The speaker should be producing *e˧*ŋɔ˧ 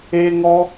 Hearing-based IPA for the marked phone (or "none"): e˧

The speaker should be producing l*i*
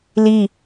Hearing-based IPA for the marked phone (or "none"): i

